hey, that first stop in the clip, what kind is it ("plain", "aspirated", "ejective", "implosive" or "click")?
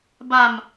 plain